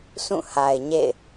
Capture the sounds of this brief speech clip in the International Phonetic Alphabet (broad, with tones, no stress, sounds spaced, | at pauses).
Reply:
s ũ˦˨ h a˨ ɪ̯ ɲ ḛ˦˨ ɪ̯